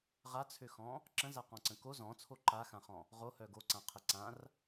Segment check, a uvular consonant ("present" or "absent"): present